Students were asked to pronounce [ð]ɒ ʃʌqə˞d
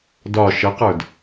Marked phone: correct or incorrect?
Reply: incorrect